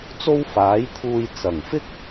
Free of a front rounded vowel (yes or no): yes